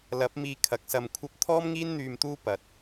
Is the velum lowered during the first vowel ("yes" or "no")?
no